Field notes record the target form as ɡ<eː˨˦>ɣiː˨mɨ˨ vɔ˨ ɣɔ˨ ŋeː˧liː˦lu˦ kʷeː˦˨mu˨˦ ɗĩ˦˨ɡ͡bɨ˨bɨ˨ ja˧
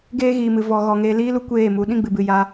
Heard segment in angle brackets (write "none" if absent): eː˧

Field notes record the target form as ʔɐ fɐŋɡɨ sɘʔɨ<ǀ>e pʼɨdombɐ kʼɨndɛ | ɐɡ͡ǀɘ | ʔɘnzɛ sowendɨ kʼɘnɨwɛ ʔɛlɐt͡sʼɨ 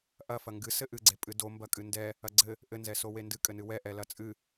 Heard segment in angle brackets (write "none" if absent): ɡ͡ǀ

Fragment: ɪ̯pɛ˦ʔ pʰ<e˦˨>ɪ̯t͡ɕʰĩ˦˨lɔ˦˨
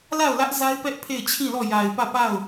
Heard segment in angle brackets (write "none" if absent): e˦˨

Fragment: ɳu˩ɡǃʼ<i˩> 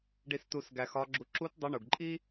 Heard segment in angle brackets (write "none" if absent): i˥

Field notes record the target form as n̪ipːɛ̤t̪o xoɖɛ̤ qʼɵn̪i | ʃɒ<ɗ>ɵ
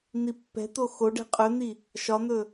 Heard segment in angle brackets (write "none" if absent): n̪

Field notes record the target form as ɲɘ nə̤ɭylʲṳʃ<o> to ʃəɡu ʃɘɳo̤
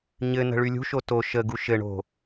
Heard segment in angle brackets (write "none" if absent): o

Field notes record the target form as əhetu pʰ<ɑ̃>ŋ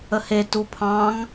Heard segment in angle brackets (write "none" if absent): ɑ̃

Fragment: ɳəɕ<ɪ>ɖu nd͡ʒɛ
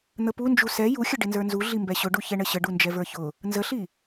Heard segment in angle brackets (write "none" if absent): ə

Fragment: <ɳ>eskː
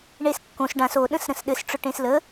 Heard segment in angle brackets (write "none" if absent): ɳ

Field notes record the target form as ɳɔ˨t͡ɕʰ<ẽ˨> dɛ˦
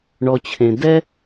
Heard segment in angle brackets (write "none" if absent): ẽ˨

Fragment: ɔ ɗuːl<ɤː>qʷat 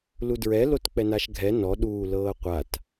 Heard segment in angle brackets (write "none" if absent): ɤː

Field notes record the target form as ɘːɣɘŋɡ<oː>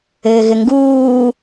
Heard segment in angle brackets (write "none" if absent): uː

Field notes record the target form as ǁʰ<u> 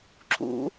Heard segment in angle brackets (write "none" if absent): ṵ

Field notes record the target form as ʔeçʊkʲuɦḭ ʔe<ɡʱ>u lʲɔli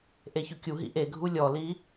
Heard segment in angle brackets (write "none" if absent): ɡʱ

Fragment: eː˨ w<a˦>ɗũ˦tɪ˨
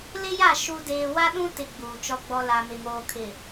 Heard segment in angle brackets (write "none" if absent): a˦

